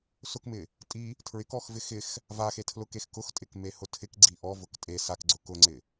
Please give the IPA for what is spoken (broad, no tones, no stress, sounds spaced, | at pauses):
s ʊ k m ɪ | tʼ i | tʰ ɹ ɪ k ɔ x v ɪ x ɪ x | v a x e tʰ l ʊ k e x k ʊ x tʼ ɪ k m e h ʊ tʰ ɪ k ɡ͡ǀ i ʔ ɔ v ʊ k tʼ e s a k ɡ͡ǀ ʊ k ʊ ŋ͡ǀ ɪ